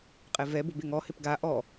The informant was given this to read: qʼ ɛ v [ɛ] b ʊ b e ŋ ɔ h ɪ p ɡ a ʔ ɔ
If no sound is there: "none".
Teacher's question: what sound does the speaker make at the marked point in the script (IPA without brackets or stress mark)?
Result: ɛ